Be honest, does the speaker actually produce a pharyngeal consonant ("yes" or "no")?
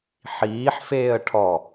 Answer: yes